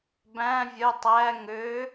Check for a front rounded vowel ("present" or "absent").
present